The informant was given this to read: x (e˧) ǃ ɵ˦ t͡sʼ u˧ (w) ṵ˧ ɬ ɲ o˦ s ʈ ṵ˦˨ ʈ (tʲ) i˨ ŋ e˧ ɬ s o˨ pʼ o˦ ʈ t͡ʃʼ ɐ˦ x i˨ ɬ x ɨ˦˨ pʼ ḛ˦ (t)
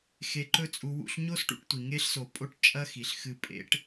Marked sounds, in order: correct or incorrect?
correct, correct, incorrect: tʷ, incorrect: ʈ

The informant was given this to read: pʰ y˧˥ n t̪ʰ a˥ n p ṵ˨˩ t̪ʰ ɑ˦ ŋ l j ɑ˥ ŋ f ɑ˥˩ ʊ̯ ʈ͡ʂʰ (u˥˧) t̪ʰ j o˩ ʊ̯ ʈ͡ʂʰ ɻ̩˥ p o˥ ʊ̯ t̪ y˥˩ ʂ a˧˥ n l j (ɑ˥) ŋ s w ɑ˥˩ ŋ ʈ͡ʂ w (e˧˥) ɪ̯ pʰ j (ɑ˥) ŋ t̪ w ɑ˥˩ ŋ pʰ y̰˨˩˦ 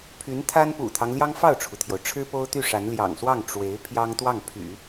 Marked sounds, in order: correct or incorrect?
incorrect: u˩, incorrect: ɑ̰˨˩, correct, correct

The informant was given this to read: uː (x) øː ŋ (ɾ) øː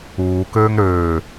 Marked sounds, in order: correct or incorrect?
incorrect: k, correct

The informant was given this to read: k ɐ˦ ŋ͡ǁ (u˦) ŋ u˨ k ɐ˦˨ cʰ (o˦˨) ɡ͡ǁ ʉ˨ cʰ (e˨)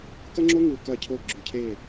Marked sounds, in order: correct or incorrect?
incorrect: o˦, correct, incorrect: e˦˨

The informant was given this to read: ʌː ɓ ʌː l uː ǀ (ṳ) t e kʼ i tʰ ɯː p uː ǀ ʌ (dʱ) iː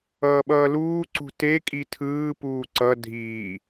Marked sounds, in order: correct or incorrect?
correct, correct

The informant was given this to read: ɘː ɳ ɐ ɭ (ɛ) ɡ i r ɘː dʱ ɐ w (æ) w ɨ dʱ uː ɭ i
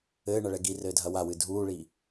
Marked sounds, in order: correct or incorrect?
correct, incorrect: a

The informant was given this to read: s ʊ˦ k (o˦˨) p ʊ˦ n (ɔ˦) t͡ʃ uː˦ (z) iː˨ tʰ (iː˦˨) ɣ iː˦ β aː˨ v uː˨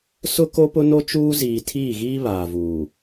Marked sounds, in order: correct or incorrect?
incorrect: o˦, incorrect: o˦, correct, correct

